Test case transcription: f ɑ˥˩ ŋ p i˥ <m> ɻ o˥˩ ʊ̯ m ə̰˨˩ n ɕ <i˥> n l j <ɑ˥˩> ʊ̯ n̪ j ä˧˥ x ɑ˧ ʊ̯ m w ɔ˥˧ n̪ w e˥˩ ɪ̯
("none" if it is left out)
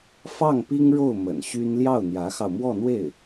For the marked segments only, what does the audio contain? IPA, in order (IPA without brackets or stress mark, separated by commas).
ŋ, y˥, ɑ˥˩